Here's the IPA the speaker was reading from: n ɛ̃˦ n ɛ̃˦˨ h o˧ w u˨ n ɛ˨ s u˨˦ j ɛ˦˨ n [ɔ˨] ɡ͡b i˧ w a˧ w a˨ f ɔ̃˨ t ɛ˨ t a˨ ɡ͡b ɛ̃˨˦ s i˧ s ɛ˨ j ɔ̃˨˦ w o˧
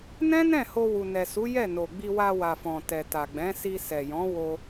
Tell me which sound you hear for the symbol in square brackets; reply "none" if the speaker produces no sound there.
o˨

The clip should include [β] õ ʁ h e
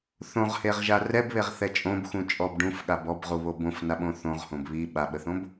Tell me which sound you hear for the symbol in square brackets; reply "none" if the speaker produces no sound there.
θ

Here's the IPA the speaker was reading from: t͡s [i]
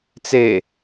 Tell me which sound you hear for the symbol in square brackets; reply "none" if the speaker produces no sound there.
e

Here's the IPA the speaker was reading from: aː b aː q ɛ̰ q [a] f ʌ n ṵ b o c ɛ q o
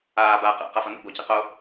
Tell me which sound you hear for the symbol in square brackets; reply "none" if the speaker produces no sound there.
a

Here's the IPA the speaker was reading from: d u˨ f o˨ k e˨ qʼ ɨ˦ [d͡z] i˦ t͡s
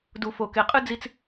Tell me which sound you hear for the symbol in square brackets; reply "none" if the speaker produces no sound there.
d͡z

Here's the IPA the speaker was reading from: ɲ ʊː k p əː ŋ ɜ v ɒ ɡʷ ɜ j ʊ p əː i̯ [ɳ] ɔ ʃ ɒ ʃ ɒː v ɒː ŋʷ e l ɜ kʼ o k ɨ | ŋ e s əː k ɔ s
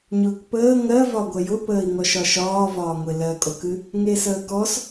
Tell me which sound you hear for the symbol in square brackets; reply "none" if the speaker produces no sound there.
ŋ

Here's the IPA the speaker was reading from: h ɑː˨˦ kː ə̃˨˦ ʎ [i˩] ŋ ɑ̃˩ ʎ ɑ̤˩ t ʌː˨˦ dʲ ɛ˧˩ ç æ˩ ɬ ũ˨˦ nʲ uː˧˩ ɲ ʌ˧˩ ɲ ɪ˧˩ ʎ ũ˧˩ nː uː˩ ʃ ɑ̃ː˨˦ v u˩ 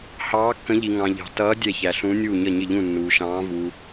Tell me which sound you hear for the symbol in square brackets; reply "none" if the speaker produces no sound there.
i˩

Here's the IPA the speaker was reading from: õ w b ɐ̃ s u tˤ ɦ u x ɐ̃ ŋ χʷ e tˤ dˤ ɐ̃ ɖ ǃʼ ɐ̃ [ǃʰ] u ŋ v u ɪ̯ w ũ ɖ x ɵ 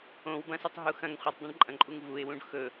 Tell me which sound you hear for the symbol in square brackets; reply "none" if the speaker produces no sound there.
ǃʼ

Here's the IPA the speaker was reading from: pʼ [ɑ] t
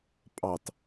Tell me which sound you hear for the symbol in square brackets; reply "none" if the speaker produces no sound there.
ɑ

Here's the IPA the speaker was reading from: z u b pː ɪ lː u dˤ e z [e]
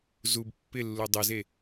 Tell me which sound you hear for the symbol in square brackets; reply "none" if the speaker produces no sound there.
e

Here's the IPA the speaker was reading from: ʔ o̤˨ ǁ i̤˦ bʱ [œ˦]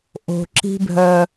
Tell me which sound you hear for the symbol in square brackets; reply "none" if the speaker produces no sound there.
œ˦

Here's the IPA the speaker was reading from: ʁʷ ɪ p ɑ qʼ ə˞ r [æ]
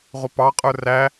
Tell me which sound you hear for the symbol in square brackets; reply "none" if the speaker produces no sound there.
æ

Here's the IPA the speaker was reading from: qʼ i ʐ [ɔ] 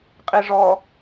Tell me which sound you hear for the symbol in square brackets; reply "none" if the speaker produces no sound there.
ɔ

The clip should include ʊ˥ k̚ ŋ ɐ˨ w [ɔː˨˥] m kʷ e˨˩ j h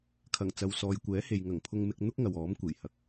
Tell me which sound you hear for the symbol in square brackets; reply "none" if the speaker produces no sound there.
ɔː˨˥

